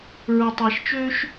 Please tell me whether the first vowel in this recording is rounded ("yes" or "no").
yes